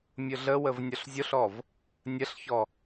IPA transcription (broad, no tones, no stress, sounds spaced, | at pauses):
mʲ ʊ ɮ ə w ə v nʲ ɔ ɬ zʲ o ɬ ɔ v | nʲ ə ɬ ç ɔ